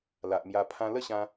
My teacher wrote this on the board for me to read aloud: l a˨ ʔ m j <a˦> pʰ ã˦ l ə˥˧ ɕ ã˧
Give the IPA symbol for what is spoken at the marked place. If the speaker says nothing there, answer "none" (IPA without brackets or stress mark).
a˧